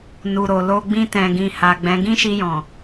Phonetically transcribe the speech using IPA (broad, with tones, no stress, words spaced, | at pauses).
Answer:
nu˨ɾo˨lo˧ ɡ͡bĩ˧tɛ̃˨ɡĩ˨ha˨ ɡ͡bɛ̃˨˦ ɡĩ˦ʃi˧jɔ̃˨